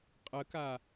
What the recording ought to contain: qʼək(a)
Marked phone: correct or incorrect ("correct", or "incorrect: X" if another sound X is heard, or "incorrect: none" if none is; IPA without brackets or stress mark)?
correct